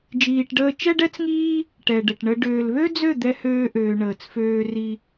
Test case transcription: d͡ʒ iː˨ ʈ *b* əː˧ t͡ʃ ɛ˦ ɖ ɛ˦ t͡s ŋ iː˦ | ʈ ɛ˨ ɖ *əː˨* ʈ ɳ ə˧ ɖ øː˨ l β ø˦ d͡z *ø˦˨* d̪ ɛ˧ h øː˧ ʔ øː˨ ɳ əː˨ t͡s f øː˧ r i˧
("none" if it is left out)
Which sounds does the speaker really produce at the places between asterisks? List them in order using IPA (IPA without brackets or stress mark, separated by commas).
ɖ, ə˨, ø˦˨